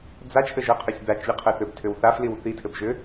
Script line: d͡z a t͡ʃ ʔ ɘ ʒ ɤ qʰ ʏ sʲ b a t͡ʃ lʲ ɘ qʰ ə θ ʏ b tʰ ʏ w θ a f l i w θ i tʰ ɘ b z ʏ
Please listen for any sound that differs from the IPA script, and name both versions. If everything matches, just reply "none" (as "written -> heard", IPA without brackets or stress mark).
z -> ʒ